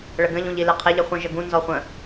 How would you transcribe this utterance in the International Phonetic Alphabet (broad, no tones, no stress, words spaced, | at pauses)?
ɭəɡə̃ʎ ũʎileqʰeʎ əχʷə̃ ʒəɡũ nzɔχʷə̃